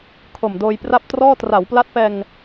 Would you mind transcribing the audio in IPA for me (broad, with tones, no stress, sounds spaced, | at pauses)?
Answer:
kʰ o˨˩ m d oː˧ j p r a˥˩ p̚ t r ɔː˥˩ t r a˩˦ w p l a˦˥ t̚ p ɛː˧ ŋ